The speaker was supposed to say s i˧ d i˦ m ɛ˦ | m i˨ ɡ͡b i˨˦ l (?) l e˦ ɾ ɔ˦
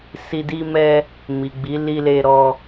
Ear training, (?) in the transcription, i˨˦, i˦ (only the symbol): i˦